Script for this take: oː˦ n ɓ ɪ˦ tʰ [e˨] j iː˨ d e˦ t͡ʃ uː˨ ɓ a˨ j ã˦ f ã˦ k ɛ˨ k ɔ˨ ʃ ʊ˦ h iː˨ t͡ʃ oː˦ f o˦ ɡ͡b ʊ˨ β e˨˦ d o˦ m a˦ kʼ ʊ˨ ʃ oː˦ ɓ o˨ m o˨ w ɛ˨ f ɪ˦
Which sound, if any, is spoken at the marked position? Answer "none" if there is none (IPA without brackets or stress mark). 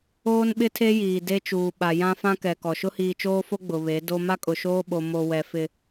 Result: e˦